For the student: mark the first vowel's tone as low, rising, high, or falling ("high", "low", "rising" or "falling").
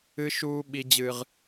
high